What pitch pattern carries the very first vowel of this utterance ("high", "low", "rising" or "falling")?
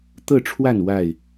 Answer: falling